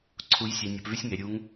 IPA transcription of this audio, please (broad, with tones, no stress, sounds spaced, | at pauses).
ǀʰ u˧˥ j sʲ ɛ˧ nʲ o˧ p v y˥ sʲ ŋ e˩˧ ɾʲ u˧˥ ŋ